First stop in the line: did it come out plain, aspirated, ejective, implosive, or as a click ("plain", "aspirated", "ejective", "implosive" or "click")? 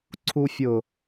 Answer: click